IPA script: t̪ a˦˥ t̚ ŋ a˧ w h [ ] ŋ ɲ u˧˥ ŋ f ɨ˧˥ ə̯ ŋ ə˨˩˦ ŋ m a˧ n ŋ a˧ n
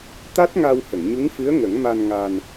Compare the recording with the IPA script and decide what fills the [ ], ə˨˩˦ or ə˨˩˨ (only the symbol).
ə˨˩˨